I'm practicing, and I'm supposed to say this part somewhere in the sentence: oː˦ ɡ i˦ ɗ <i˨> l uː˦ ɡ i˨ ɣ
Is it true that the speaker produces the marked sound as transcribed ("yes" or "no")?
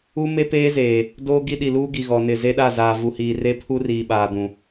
yes